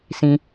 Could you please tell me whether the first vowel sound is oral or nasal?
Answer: nasal